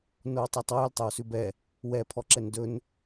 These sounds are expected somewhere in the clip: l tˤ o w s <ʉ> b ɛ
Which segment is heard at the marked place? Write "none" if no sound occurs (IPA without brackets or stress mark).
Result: ʉ